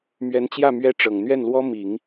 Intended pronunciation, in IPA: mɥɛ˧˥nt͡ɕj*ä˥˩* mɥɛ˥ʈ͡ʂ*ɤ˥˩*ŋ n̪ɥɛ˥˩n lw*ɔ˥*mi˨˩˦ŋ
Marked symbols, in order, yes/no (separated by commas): yes, no, yes